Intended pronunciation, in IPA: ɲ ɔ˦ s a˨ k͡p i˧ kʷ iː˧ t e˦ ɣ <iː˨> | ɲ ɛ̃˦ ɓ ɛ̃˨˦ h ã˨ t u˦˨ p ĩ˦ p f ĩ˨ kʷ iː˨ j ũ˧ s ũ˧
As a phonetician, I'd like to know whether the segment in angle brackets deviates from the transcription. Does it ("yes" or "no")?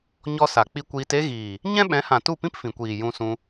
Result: no